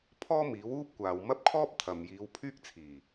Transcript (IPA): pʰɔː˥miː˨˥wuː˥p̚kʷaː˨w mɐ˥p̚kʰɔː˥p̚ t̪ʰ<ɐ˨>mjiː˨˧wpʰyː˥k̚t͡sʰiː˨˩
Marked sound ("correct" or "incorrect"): correct